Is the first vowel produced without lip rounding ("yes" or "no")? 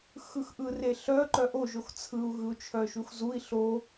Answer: yes